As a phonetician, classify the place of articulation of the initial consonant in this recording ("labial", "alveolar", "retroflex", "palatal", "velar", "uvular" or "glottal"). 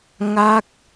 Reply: velar